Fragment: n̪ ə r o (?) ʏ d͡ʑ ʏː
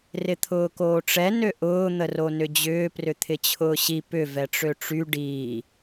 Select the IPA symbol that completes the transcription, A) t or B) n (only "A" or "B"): B